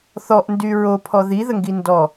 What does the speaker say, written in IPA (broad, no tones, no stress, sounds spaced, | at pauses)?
θ ɔ ʔ n d y ɹ o pʰ ɔ ð i ð ə ŋ ɡ i n d ɔ